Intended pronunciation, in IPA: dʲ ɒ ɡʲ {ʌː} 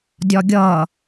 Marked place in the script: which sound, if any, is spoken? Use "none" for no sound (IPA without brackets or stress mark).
ʌː